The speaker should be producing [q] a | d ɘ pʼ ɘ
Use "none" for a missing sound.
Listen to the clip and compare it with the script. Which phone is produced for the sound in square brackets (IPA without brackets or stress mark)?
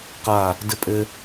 q